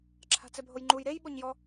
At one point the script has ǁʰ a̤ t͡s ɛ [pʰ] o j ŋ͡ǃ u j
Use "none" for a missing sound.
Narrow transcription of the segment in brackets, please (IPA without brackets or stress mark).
bʱ